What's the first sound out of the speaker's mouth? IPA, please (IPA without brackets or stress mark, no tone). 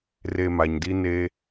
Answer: r